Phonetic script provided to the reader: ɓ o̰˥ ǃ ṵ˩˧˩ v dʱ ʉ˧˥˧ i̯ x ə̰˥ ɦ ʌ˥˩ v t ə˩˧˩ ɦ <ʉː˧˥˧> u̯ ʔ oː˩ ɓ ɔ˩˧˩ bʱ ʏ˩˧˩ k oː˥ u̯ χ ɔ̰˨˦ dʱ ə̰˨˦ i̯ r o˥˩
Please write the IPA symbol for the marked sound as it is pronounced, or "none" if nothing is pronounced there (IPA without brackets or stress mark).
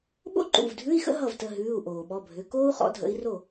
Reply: ʉː˩˧˩